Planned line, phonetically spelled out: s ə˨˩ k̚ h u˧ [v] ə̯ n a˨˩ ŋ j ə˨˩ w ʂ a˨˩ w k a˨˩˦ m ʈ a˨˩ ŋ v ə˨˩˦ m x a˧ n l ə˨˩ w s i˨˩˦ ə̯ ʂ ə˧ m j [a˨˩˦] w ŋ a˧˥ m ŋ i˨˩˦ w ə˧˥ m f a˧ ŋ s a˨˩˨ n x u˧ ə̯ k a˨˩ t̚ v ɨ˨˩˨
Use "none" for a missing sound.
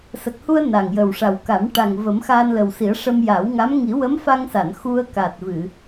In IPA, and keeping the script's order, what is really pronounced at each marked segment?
none, a˨˩˦

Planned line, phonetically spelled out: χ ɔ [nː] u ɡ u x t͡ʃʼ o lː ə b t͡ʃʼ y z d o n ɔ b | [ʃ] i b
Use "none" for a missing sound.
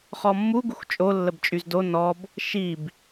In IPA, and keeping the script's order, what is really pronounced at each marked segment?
mː, ʃ

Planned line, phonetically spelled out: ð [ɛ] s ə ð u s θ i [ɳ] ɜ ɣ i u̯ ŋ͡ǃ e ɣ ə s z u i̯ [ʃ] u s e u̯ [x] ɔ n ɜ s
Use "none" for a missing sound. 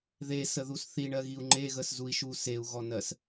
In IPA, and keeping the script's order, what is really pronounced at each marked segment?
e, ɳ, ʃ, ɣ

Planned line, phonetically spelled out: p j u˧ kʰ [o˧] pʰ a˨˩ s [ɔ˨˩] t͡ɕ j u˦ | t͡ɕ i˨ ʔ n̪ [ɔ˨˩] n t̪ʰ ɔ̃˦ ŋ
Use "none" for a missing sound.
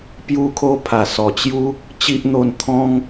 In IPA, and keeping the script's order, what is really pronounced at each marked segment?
o˧, ɔ˨˩, o˨˩

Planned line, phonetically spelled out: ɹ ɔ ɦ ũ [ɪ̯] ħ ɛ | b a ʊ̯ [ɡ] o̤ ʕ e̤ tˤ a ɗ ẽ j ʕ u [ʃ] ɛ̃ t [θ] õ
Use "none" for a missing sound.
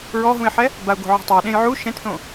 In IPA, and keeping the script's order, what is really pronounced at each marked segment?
ɪ̯, ɡ, ʃ, θ

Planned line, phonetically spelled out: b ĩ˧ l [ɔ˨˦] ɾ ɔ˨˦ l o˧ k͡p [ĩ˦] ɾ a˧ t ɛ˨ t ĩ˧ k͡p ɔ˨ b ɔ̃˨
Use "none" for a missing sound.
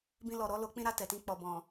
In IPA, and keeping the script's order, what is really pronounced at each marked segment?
ɔ˨, ĩ˦

